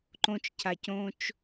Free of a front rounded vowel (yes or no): yes